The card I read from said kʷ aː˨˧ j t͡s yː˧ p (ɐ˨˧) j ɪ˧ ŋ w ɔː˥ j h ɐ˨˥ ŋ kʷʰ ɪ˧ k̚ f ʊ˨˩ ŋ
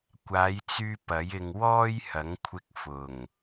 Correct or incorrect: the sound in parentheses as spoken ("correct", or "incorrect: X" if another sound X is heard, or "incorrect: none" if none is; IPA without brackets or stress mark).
incorrect: ɐ˨˥